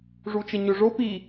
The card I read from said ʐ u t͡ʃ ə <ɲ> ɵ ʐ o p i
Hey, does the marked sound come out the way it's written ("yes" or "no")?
yes